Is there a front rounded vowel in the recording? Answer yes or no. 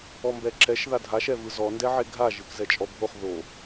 no